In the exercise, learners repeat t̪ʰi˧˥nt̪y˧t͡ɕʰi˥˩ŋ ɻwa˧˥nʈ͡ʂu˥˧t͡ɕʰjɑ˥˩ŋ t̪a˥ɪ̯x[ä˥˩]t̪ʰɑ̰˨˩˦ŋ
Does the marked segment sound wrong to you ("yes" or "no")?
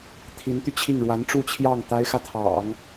yes